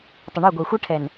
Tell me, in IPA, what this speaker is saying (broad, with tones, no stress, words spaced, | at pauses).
tˤə˨ɳə˞˦˨ɡʷɛ˨ xʷɛ˦ʈʰɛ˨n